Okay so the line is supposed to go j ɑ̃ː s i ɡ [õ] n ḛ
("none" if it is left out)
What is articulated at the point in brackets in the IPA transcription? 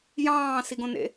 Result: õ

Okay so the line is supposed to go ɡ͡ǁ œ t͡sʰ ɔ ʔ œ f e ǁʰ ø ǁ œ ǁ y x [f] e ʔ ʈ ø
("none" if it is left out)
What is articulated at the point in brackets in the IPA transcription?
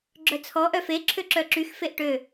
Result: f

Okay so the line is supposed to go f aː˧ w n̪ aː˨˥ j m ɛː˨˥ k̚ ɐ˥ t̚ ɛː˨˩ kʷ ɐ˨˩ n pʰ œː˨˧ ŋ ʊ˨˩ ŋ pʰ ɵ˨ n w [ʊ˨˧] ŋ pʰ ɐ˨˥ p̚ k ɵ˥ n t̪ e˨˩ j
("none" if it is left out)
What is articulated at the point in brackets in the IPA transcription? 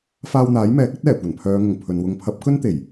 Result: ʊ˨˧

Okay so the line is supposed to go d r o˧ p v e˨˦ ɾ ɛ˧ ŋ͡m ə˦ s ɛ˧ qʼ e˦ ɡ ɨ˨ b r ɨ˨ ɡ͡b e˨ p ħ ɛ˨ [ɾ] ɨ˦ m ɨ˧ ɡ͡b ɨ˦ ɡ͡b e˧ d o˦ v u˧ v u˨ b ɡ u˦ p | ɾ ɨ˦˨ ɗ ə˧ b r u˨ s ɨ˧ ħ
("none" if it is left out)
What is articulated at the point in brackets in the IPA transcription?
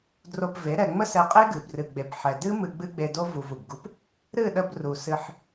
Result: d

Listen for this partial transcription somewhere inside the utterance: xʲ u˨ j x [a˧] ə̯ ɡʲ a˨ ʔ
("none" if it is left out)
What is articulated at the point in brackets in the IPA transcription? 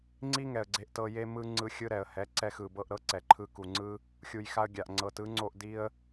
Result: a˧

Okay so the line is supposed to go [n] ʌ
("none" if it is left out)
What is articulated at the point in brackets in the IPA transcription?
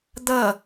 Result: d̪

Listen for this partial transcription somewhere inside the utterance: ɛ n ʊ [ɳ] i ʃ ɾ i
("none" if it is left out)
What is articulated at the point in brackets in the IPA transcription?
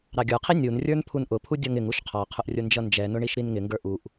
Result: ɳ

